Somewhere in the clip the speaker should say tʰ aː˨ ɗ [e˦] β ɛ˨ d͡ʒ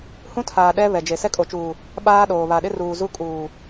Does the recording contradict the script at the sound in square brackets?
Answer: yes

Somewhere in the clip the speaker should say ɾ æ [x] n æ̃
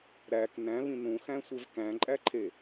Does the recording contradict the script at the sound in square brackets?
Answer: yes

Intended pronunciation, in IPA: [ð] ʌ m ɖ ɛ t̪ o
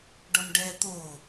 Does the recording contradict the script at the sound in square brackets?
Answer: yes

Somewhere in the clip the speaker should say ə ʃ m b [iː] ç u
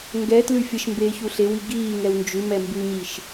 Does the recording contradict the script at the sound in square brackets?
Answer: yes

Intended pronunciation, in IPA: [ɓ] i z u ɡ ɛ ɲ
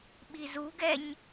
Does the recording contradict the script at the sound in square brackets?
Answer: no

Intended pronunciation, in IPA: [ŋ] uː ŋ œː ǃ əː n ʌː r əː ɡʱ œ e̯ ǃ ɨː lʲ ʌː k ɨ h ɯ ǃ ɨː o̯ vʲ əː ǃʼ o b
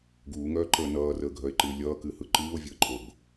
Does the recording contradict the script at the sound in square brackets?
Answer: yes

